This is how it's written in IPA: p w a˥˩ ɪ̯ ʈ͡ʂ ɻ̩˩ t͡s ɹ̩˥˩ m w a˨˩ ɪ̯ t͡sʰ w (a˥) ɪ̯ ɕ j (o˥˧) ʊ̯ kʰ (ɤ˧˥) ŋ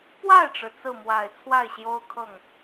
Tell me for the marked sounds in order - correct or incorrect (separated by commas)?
incorrect, incorrect, incorrect